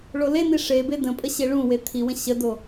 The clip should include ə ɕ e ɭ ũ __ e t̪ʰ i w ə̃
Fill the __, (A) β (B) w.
B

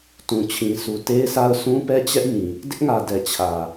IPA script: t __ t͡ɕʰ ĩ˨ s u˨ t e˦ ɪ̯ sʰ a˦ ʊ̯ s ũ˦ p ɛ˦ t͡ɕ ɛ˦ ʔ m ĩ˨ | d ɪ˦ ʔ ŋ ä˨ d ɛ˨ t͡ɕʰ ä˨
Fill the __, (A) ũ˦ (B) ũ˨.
B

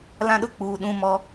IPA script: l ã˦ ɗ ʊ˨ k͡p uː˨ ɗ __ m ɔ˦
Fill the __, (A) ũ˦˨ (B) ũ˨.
A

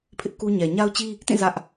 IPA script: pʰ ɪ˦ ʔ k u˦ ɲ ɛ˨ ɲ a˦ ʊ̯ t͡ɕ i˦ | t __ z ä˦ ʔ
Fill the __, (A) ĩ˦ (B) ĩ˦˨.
B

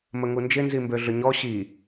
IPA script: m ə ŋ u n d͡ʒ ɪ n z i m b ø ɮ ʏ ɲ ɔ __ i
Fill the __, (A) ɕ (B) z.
A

